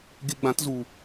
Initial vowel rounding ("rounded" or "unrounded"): unrounded